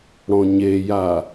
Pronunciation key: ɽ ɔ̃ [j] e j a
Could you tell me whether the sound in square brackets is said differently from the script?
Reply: yes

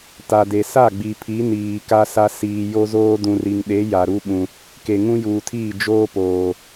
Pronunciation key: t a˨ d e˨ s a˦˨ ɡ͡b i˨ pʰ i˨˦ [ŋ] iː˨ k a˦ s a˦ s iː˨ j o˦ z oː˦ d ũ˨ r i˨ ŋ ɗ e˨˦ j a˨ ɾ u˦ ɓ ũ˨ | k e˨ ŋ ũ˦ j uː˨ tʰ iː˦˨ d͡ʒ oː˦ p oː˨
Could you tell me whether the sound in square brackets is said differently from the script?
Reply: yes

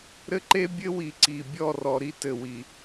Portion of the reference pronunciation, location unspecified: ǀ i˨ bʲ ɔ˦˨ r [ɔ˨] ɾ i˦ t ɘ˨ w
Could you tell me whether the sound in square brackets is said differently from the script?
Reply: no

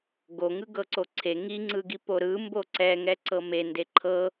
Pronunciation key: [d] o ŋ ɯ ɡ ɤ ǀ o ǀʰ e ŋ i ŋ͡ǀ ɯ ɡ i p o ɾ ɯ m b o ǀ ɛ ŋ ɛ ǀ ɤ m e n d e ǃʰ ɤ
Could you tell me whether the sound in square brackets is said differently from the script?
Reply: yes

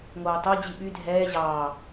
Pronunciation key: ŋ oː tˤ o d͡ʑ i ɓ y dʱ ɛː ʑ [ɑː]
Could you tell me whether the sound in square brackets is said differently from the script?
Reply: no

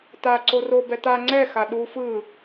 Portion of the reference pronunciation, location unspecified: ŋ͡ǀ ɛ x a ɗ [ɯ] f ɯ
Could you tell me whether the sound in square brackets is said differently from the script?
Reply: yes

